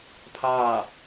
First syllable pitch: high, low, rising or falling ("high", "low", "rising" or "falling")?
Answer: falling